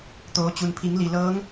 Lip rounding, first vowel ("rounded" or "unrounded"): rounded